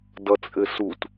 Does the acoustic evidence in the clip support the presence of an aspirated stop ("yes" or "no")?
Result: no